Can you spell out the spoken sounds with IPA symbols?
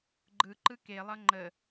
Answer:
ɡ͡ǃɯǃɯ kelˠʌ ŋ͡ǃə

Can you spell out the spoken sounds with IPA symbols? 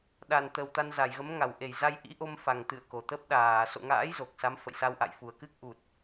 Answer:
ɗa˨˩nt̪ə˨˩w t̪a˧nza˧˩jɣə˨˦mŋa˧˩w ʔe˧˩jza˧j ʔḭ˧˥ʔo˧mfa˨˩ŋ t̪ɨ̰˧˨ə̯ko˧˩t̪ə˦˥p̚ ɗaː˧˩ so̰˧˨ŋa̰ː˧˥j zo˨˩k̚ sa˨˦mfə̰˧˨jsa˧wʔa̰˧˨j fu˨˩ə̯kɨ˦˥k̚ʔu˨˩t̚

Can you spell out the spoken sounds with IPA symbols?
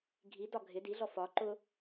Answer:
ɡʱidɒ ɡʱɪ diɮɔ fɒ ǃʊ

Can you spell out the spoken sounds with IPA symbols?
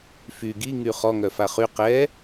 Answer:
fy ɡi ŋyχɔŋœfa χy qɛ

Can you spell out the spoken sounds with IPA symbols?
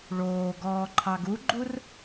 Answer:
ɭoː ɡɔːǃʰɑɡuɡ͡ǃur

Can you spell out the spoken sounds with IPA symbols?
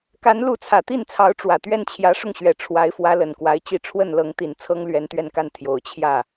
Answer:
ka˧˥nlu˧˥t͡sʰä˨˩t̪i˥˩n t͡sʰɑ˧˥ʊ̯ʈ͡ʂwä˨˩t̪ɥɛ˥˩n t͡ɕʰjä˧˥ʂʊ˥˩ŋɕɥɛ˨˩ ʈ͡ʂʰwa˧˥ɪ̯fwä˧˥ lə˨˩nkwa˧˥ɪ̯t͡ɕi˥˧ ʈ͡ʂʰwə˥˩nlɤ˧˥ŋt̪i˨˩n t͡sʰɤ˥ŋlɥɛ˧˥nt̪ɥɛ˥˧nka˥˩n t̪ʰjo˨˩ʊ̯ t͡ɕʰjä˥˩

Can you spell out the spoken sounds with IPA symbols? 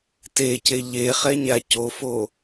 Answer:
tece ʎeχɛɲa cofo

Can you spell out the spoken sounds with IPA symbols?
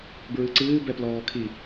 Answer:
bɹɨǀɨː bɛplɔːkʰi

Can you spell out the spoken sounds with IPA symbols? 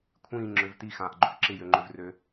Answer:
kʷʰĩːŋ͡ǁøv tixãːʔɡ͡ǃʏv ǁɪjøŋ͡ǃʏvrø

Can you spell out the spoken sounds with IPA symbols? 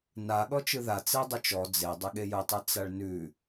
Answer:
na ɠɔt͡ʃɯða t͡sedˤʊt͡ʃɔ d͡ze dˤʉɠejʊtˤɯ t͡saɭnʉ

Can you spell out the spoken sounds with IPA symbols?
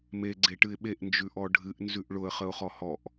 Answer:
me ɡ͡ǀeʈɨɪ̯ɓeʔ nd͡ʒʉʔɔɖʱɨʔ nzʉʔɭʊə̯ χəʊ̯χɔhɔʔ

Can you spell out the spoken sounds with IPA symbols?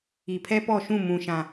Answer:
i˨pʰɛ˦pɔ˦˨ʃũ˦˨ mũ˨ ʃã˨

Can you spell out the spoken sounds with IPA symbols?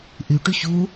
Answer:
ʔyʈyç u

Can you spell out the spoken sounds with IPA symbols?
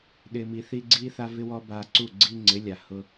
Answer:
ɗɪ˨mi˨θi˧ɡ͡ǀi˦ θa˦vɪ˦wɔ˦ ba˧ǀu˦˨ɡ͡ǀi˦ ŋ͡ǀɪ˨˦lʲa˨hʊ˧

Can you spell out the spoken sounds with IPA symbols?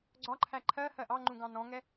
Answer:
ɡ͡ǀɒǃʰæ ǃʰɜhɜ ʔɑŋ͡ǃũɡɑ̃ nɔ̃ŋɛ

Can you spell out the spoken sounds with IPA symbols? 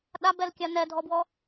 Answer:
ɗabɛlkʲa nɛdʱɔbwɔ

